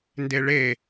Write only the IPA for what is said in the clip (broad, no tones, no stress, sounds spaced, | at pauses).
n d e ɭ e